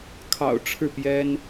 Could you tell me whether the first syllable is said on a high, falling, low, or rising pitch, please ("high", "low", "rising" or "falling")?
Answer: low